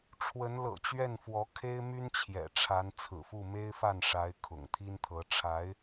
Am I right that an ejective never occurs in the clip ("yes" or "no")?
yes